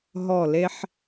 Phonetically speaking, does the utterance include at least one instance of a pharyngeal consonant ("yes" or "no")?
yes